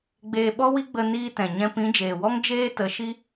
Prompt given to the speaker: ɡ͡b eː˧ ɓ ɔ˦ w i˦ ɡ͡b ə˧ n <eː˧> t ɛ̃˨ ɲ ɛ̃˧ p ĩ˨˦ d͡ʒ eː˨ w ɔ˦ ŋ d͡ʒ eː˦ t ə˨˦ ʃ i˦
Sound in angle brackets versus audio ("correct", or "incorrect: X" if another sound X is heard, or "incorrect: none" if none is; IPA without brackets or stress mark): incorrect: iː˧